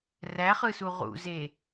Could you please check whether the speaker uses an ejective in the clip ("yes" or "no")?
no